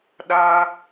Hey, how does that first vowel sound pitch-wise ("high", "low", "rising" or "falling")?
high